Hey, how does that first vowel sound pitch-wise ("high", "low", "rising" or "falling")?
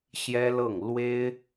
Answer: high